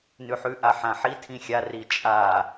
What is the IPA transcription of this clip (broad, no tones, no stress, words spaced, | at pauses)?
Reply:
nʉħʉ ʔaħãħi tʰĩxʲa rit͡ʃʼa